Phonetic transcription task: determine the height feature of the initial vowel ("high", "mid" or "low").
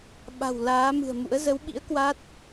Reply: low